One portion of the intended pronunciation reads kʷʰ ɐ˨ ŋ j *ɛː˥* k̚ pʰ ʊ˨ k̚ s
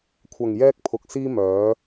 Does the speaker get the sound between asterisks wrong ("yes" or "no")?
yes